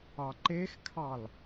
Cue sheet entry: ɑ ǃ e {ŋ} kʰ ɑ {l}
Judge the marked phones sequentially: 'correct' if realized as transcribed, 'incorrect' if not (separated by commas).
incorrect, correct